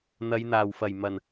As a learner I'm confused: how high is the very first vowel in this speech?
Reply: low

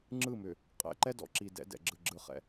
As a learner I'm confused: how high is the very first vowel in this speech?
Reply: high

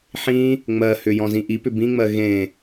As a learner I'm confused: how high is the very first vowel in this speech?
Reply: high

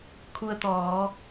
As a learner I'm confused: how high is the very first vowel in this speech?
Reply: high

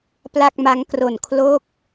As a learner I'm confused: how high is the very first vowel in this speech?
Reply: low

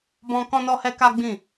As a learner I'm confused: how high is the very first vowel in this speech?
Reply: mid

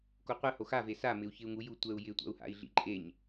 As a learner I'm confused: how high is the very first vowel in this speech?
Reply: mid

